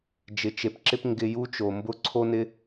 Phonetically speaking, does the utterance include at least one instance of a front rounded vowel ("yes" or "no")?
no